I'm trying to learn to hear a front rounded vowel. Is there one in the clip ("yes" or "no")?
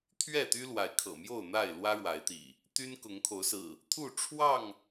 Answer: yes